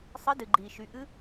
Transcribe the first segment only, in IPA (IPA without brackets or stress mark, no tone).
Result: sˤ